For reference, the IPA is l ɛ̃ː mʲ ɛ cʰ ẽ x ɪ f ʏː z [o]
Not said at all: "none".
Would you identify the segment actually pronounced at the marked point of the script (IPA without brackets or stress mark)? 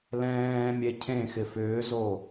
o